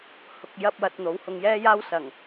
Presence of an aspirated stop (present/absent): absent